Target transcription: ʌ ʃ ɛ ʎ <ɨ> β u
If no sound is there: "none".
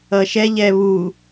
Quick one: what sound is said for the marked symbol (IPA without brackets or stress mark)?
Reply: ɛ